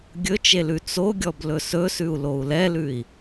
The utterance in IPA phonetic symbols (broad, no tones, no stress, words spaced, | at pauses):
ɡʲɵt͡ʃelʉ t͡soɡʲɔblɵ sɵsʉu̯lou̯ lɛlʉi̯